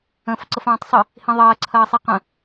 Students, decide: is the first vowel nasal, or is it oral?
nasal